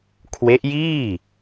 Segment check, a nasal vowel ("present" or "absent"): absent